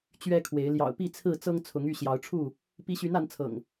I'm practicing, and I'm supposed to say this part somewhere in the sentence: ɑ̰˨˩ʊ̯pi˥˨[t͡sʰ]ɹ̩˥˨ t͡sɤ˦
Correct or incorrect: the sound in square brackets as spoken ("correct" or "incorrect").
correct